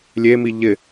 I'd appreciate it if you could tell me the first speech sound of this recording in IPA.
lʲ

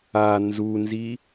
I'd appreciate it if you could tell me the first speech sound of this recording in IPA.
a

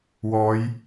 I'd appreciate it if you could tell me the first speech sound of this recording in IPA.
w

